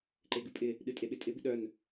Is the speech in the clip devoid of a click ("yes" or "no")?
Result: no